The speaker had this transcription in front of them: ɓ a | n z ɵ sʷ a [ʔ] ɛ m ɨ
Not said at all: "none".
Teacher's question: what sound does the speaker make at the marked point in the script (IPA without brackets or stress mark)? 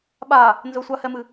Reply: h